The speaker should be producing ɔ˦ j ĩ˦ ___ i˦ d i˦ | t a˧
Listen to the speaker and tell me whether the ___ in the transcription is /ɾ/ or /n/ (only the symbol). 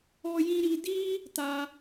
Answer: ɾ